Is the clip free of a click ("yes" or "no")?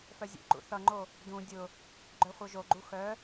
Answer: no